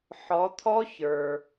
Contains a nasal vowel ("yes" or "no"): no